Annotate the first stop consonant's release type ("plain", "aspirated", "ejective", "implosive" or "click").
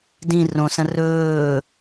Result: plain